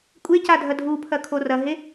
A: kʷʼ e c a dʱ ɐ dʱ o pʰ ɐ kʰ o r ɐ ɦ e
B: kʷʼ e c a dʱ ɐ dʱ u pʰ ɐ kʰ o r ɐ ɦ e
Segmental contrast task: B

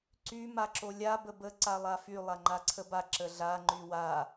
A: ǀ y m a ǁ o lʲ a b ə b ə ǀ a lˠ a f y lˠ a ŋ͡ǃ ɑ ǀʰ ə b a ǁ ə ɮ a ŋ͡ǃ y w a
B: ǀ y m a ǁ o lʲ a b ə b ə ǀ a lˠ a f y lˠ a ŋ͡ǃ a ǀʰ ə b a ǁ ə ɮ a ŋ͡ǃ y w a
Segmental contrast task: B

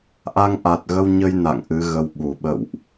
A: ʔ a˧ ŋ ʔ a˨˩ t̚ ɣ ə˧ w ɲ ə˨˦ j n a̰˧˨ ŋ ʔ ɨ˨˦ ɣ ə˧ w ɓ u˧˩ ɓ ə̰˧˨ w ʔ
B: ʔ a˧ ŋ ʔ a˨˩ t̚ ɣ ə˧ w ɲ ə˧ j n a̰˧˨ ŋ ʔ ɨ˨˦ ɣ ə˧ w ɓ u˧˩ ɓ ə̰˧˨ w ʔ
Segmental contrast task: B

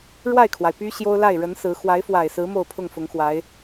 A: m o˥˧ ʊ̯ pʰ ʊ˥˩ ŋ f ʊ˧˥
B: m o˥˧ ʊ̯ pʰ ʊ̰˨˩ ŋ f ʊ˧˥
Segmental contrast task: A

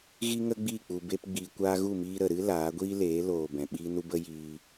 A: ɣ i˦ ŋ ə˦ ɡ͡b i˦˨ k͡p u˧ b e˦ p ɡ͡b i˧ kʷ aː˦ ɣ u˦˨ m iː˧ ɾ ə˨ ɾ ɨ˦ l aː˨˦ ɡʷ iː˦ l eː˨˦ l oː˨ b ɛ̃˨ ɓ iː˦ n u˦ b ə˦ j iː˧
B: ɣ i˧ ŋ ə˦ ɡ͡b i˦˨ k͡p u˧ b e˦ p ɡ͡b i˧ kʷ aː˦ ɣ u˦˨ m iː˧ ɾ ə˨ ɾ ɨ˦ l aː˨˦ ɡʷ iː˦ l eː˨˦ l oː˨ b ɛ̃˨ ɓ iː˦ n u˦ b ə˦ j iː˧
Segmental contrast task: A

